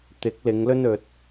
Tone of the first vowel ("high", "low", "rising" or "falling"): rising